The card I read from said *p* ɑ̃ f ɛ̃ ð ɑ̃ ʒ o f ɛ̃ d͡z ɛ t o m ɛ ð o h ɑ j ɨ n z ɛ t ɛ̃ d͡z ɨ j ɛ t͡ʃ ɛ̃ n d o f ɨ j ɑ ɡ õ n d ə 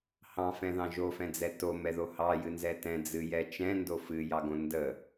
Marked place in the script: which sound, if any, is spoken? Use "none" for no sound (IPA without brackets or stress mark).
h